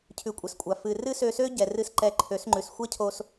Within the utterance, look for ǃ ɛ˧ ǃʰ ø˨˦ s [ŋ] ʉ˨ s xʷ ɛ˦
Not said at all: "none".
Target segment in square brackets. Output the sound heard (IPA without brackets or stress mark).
ŋ͡ǃ